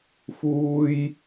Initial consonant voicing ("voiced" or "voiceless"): voiceless